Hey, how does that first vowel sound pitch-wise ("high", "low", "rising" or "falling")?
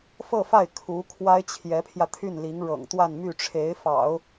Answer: falling